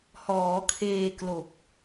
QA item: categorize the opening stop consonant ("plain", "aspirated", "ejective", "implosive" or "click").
aspirated